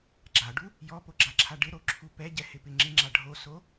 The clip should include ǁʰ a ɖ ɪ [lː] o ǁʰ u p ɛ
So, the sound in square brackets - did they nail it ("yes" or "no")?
no